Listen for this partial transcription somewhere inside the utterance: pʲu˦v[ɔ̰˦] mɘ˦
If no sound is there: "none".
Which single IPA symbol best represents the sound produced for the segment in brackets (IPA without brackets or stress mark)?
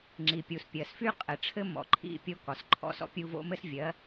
o̰˦